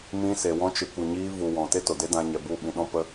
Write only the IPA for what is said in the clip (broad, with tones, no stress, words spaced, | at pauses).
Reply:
mĩ˧ se˨ wɔ̃˧ t͡ʃɨ˨kʷɨ˨ɲiː˧ vu˨wɔ̃˨ te˦to˨de˦ dã˧ɲɛ˨bu˦˨ɓĩ˧ ɗɔ̃˦pə˦